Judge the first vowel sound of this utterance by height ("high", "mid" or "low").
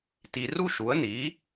high